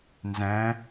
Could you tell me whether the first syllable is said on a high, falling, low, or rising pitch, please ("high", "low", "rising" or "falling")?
rising